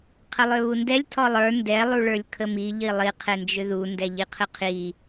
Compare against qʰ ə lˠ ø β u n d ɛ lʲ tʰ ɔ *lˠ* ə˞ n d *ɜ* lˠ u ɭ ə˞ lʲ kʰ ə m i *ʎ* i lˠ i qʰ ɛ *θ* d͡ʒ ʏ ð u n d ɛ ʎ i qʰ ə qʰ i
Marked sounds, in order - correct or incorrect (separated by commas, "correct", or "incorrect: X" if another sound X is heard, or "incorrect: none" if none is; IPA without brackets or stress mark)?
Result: correct, incorrect: ɛ, correct, incorrect: n